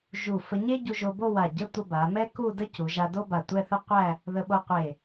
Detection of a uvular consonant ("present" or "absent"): present